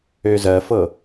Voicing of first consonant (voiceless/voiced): voiced